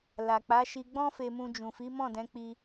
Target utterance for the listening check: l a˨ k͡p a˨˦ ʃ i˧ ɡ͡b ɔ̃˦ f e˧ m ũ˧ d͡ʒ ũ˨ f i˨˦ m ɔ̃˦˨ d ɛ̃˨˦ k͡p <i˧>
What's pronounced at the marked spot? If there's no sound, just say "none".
i˧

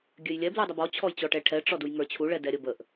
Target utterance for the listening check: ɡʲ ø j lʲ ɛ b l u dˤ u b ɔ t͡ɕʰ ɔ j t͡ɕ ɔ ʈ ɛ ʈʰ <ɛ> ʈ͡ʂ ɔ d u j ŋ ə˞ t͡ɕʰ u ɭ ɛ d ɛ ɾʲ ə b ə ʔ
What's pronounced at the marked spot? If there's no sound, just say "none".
ɛ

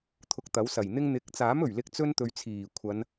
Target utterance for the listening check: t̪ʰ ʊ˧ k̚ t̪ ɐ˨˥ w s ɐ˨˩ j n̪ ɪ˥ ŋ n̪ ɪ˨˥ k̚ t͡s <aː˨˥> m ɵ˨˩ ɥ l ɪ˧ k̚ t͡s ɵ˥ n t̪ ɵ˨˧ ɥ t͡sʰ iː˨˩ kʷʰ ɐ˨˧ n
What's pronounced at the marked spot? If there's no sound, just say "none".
aː˨˥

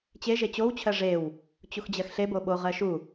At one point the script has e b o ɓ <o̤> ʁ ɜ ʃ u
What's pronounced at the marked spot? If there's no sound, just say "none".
o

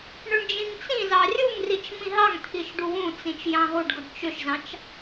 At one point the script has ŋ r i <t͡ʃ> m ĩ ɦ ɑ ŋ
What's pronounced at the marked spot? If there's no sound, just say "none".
t͡ʃ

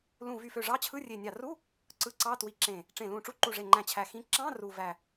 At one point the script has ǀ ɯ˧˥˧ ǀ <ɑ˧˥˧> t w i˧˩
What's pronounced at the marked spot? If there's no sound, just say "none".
ɑ˧˥˧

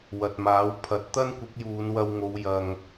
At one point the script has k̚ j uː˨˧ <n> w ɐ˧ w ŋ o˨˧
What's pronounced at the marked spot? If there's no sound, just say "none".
n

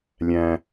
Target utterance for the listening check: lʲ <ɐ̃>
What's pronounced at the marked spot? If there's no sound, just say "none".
æ̃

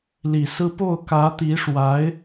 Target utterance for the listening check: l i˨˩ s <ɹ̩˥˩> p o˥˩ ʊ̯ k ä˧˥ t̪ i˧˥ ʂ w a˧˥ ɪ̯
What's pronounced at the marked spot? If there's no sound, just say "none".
ɹ̩˥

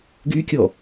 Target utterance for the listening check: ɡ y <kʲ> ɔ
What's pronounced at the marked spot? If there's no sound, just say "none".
kʲ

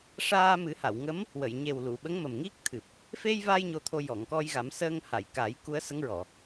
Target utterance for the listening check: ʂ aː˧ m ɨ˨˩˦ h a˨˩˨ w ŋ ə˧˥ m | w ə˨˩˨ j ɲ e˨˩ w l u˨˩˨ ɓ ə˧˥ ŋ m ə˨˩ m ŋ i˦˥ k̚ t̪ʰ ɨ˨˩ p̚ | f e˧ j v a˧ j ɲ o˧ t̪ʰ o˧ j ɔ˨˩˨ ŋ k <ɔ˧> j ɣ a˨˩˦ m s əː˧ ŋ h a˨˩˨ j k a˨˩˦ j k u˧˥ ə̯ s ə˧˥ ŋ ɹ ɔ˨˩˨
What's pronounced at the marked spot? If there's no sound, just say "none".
ɔ˧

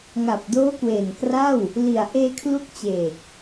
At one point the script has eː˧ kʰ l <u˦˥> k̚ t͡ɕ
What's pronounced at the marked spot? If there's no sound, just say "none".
u˦˥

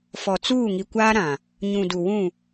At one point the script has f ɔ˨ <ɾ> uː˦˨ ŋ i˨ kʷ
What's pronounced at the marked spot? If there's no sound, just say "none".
t͡s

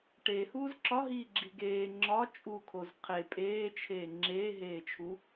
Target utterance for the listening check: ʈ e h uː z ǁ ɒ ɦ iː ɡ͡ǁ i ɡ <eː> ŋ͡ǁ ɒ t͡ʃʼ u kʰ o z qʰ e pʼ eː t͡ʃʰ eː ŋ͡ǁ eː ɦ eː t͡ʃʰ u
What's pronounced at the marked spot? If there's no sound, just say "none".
eː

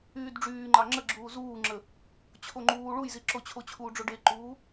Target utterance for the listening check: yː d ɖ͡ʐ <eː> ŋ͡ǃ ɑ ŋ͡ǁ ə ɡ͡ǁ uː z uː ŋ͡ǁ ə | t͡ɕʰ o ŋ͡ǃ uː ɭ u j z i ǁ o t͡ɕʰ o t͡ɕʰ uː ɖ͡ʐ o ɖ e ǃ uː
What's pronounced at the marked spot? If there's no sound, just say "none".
yː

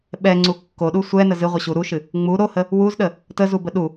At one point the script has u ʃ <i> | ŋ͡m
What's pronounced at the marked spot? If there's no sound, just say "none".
ɨ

